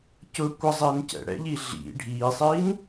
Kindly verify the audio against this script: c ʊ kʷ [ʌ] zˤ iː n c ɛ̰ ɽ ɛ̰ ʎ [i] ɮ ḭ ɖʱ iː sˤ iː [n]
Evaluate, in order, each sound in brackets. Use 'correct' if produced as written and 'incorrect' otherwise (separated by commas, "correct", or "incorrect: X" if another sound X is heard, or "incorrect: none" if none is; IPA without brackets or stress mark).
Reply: correct, correct, correct